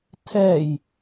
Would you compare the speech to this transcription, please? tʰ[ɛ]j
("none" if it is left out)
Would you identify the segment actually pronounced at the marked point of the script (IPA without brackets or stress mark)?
ɛ